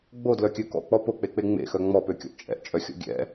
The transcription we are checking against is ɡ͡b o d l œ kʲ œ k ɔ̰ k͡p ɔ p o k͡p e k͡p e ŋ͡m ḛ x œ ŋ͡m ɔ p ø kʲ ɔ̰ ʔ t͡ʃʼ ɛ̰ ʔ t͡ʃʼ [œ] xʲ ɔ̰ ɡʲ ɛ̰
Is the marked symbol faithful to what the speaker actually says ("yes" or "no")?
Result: yes